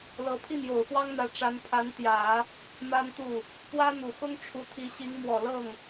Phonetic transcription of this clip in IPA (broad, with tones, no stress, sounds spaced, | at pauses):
l ɤ˧˥ pʰ i˥˩ n j o˨˩ ʊ̯ f w ɑ˥ ŋ n̪ ä˧˥ ʈ͡ʂ a˧˥ n pʰ a˧˥ n t̪ j ä˨˩˦ | m a˥ n t̪ u˥˩ | p w ä˥ n̪ u˨˩ x ʊ˥ ŋ ʈ͡ʂʰ u˧˥ t̪ʰ i˧˥ ɕ i˧˥ ŋ m w ɔ˨˩ l ɤ˥˩ ŋ